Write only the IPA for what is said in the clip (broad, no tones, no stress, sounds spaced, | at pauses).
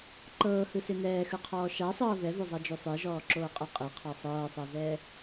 ǃ ɤː h ɯ s e n ɛː x ɯ qʰ ɔː ʃ a sˤ ɤː v ɛ v o zˤ a d͡ʒ o sˤ e ʒ ɔː ǁ oː qʼ ɛ qʼ e qʰ a sˤ ɤː sˤ a z ɛː